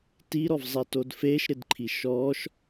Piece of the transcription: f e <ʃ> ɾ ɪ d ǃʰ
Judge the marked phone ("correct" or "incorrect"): correct